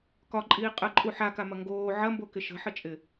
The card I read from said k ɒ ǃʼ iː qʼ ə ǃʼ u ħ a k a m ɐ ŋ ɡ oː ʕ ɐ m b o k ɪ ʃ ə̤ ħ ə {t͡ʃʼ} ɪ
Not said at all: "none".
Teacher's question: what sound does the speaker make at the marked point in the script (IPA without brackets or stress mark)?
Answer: t͡ʃʼ